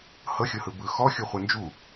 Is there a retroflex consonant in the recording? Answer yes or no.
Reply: no